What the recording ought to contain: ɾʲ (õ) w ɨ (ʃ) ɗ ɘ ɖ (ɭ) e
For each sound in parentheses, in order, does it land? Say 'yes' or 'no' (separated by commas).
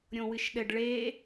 yes, yes, yes